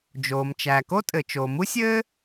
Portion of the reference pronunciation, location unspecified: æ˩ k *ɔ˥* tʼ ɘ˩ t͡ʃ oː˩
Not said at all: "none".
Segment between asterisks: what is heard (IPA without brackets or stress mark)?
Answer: o˥